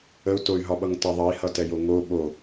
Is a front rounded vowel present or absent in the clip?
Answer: present